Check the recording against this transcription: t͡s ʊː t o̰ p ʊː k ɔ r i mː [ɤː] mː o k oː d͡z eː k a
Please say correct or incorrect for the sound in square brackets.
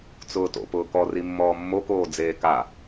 incorrect